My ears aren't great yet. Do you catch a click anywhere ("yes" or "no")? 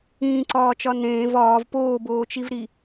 yes